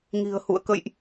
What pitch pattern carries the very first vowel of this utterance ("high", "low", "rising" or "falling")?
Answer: low